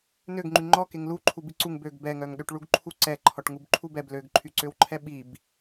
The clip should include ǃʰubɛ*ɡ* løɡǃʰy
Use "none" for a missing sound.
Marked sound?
b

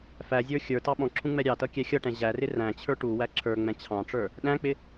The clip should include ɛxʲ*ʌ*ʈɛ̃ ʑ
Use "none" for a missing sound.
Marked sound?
ʌ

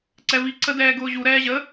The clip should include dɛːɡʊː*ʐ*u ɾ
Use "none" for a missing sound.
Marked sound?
ʑ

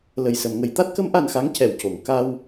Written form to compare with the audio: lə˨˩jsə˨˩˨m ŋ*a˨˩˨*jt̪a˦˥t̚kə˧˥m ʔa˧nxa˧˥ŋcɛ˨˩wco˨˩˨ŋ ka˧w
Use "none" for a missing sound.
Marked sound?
ə˨˩˨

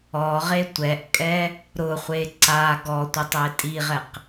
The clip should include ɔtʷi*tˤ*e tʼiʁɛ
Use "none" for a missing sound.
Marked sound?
tˤ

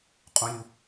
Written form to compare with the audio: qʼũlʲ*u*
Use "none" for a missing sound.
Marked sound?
u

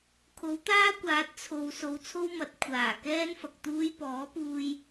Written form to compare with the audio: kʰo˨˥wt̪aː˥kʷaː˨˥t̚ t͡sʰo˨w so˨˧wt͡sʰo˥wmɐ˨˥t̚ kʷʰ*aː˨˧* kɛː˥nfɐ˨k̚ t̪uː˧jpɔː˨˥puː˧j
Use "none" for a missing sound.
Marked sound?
aː˨˩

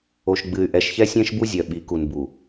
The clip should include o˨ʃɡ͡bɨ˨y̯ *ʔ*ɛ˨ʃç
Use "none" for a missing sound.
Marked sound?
ʔ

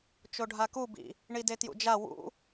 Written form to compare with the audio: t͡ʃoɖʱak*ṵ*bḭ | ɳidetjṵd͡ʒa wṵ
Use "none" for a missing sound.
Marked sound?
u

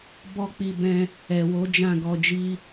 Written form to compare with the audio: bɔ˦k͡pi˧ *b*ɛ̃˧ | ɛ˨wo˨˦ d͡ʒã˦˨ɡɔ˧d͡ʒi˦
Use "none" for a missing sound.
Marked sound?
b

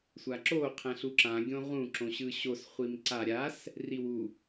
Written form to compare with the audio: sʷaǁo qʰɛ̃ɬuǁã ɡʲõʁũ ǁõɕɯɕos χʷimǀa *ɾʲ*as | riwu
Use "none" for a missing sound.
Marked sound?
ɾʲ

